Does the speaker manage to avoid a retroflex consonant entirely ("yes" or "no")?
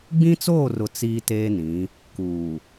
yes